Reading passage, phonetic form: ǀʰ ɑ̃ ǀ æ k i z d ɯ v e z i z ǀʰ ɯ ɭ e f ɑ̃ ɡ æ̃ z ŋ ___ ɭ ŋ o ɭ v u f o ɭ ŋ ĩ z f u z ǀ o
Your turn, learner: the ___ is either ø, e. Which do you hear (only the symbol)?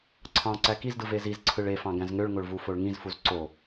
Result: ø